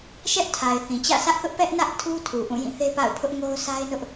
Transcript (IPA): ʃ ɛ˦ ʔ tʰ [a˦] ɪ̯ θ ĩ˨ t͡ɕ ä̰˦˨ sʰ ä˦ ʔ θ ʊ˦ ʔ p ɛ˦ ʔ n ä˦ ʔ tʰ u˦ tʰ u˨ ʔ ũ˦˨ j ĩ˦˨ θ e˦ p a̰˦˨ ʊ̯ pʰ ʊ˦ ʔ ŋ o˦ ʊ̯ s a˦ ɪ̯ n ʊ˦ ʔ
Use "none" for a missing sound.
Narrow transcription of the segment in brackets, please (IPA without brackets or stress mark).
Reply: a˨